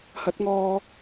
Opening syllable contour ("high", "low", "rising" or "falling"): rising